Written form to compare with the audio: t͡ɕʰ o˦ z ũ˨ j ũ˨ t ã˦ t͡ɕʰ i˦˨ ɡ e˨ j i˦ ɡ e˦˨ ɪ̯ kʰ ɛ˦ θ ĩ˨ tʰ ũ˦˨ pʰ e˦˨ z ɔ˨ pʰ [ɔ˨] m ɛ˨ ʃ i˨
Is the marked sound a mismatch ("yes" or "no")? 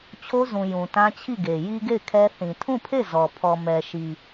no